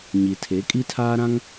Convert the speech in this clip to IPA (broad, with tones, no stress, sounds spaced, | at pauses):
ɲ i˨ tʰ e˨˦ kʼ i˦ tʰ aː˦ ɾ ã˦ ŋ